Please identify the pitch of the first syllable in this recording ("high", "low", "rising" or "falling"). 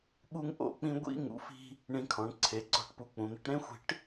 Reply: high